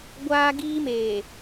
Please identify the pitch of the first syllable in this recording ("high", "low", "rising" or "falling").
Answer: high